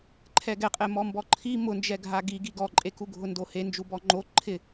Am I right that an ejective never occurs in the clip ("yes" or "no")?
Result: no